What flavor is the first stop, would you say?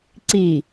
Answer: click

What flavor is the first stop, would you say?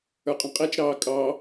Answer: ejective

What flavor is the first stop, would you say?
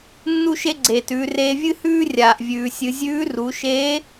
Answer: click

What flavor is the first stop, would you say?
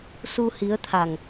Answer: aspirated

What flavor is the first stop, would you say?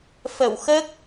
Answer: plain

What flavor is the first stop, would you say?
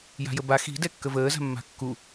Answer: plain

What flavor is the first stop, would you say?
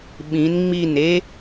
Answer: implosive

